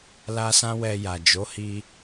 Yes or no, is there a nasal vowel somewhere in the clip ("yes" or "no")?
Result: yes